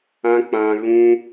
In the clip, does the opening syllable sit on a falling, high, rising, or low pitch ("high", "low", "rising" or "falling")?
high